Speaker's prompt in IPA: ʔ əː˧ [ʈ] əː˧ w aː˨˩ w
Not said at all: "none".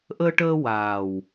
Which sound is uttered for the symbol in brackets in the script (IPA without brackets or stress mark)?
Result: ʈ